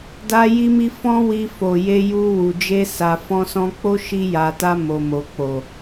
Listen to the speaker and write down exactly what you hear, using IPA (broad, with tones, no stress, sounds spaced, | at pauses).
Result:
d a˦ j i˦ m i˦ f ɔ̃˦ w i˧ f o˨ j e˧ j u˧ w u˨ d͡ʒ e˧ s a˨ f ɔ̃˧ s ɔ̃˧ k͡p o˦ ʃ i˧ j a˨ t a˧ m o˨ m o˨ k͡p o˨